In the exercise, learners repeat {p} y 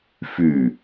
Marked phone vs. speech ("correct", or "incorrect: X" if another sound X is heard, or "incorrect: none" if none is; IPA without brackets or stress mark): incorrect: f